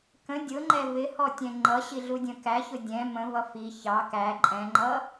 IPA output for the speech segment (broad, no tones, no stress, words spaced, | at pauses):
kə̃ dʲʊŋ͡ǃɛ vɪhɔ tʲɛ̃ŋ͡ǃʌɕi ɮudʲə̃kæçʊ dʲɛ̃ mə̃vʌ fi çɑ kæ ǃʼɛ̃ŋ͡ǃʌ